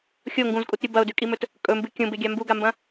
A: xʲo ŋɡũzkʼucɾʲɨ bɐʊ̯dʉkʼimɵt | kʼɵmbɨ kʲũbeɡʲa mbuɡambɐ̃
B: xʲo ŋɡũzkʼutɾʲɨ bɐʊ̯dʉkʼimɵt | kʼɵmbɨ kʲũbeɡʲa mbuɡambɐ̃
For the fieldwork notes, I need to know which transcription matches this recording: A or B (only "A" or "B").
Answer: B